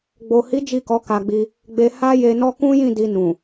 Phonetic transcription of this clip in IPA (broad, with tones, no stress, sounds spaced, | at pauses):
ɡ͡b o˨ h i˨˦ d͡ʒ i˦˨ k ɔ˨˦ k a˧ ɡ͡b i˧ | ɡ͡b e˧ h a˦ j e˧ n ɔ˦ k ũ˦ j ĩ˦˨ d i˧ n ũ˨